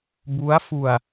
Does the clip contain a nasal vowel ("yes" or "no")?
no